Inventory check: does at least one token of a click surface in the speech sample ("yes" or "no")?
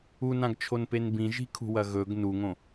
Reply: no